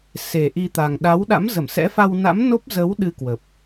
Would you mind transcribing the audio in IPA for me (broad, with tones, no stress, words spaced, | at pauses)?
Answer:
se˨˩ ʔi˧t̪a˨˩ŋ ɗa˨˦wɗa̰˧˥mzə˧˩msɛ̰˧˥ fa˧wna̰˧˥mno˦˥p̚ zə˨˦w ɗɨ˧kwə˨˩p̚